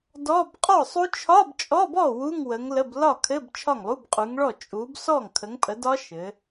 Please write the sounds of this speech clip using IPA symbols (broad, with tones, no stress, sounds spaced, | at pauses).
d ɔ˧˥˧ b qʼ ɔ˥˩ sˤ u˦˥ t͡ʃʰ ɒ˧˥˧ b t͡ʃʼ ɔ˧˥˧ b ɔ˥˩ w u˧˥˧ ŋ w ə˨˦ ŋ l ə˧˥˧ b l ɒ˥˩ kʰ ɘ˧˥˧ b t͡ʃʰ ɒ˥˩ ŋ lˠ u˧˥˧ b qʼ u˨˦ ŋ ɭ ɔ˥˩ t͡ʃʼ u˨˦ b s ɔ˥˩ ŋ kʰ ə˨˦ ŋ pʼ ə˨˦ d ɒ˦˥ ʃ ɘ˨˦